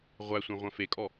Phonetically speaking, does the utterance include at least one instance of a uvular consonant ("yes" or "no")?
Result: yes